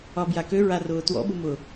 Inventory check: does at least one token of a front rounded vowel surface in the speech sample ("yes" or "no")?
yes